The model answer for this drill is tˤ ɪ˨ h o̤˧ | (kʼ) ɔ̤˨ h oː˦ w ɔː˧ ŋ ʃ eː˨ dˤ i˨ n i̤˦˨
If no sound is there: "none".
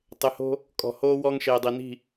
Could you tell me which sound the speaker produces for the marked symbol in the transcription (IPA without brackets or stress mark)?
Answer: kʼ